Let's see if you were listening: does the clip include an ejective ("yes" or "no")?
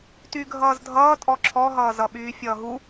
yes